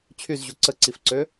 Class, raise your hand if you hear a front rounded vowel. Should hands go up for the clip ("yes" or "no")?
yes